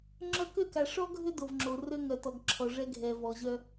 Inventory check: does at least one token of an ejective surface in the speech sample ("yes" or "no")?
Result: no